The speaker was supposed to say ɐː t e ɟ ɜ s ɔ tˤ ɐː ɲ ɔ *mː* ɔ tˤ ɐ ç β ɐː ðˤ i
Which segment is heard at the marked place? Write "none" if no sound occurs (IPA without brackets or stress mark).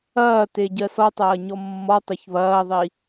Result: mː